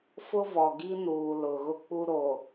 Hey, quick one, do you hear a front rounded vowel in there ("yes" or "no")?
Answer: no